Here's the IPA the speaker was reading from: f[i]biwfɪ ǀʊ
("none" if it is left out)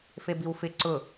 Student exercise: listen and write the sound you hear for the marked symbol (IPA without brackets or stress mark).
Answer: e